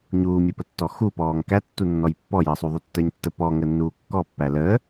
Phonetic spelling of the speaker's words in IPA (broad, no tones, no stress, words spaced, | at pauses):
ɲuːmʲupətːɔ xupɔːŋ kætːu nːɔjpːɔjəːsˤu ðˤutːəːɲtːə pɔŋənːuː kːɔpːæ ləː